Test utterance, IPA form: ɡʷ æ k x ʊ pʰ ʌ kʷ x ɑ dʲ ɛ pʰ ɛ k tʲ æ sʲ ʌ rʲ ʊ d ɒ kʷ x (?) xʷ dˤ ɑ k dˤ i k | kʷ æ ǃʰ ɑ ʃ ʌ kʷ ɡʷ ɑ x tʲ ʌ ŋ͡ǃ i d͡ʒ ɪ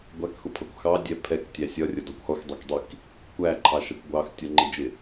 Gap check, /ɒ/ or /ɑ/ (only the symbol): ɒ